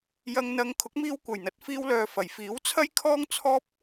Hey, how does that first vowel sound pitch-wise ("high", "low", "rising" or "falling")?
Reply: low